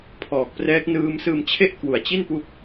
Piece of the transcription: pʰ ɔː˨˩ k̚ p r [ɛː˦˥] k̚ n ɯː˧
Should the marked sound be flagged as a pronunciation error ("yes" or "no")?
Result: no